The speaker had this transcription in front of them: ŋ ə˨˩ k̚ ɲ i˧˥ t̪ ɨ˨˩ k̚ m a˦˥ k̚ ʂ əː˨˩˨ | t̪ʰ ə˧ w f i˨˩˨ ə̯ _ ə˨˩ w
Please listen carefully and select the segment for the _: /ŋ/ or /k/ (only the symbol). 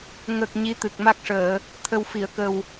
k